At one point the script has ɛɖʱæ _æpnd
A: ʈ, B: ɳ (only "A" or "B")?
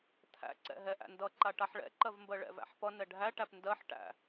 A